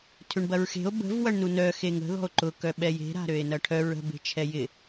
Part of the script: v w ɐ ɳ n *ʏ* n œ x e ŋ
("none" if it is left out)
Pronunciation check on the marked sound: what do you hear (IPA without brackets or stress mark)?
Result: u